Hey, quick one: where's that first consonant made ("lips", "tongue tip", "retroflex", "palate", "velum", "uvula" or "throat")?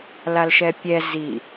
tongue tip